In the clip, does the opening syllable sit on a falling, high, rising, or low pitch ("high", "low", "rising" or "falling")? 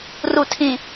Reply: low